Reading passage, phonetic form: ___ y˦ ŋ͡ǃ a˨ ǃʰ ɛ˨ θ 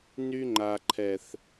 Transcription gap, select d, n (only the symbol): n